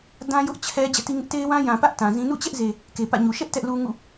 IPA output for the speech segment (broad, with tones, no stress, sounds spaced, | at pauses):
d ã˦ j ʊ˦ ʔ t͡ɕʰ ɛ˦ d͡ʑ ɛ̰˦˨ t i˦ ŋ ɪ˦ ʔ t e˦ ɪ̯ w ã˦ j ã˨ p ä˦ ʔ t ã˨ z ĩ˦ n ṵ˦˨ t͡ɕ ɛ˦ ʔ z e˨ | k e˨ p ä̰˦˨ ɲ u˨ ʃ ɛ˦ ʔ t ɛ˦ ʔ l u˦ ŋ ṵ˦˨